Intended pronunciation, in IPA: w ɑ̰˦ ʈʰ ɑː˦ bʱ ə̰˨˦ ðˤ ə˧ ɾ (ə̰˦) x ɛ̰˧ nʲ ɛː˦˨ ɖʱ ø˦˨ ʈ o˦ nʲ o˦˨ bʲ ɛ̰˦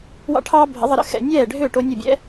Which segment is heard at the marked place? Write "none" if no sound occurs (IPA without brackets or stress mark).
ə̰˦